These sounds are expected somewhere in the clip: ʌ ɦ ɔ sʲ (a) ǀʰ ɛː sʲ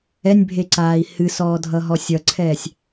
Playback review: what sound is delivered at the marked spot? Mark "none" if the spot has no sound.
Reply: ʌ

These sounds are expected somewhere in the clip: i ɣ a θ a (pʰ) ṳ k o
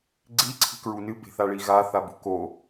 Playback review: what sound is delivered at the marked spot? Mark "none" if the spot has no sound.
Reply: b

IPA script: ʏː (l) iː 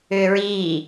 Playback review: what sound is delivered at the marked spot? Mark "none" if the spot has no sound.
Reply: ɹ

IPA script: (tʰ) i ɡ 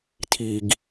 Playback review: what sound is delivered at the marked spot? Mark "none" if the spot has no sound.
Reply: tʰ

